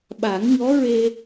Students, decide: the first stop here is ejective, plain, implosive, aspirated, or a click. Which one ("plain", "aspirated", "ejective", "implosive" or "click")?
implosive